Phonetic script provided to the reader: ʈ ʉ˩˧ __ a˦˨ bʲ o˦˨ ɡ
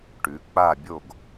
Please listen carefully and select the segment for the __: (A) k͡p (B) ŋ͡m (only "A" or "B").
A